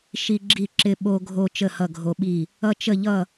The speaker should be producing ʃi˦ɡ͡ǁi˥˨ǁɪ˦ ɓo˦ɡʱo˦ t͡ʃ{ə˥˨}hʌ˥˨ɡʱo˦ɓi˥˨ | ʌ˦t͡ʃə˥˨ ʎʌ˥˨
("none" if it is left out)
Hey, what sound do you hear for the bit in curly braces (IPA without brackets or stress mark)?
ə˥˨